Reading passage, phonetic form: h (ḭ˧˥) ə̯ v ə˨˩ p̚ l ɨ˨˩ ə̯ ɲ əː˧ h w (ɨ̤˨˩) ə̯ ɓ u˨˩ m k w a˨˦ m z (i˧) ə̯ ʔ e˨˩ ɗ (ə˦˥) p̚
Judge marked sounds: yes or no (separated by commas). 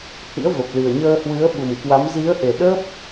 yes, no, no, yes